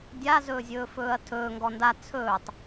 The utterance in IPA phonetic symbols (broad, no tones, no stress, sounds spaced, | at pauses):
dʲ a z ɵː zʲ ɵː f ɵː ɐ̯ tʰ ɵː ŋ ɡ ɔ n d a t͡sʰ ɵː tˤ